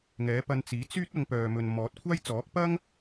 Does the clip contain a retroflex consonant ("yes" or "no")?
no